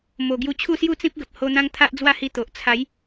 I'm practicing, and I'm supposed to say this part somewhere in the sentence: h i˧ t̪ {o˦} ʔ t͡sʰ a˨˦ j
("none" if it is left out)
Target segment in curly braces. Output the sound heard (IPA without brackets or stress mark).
o˨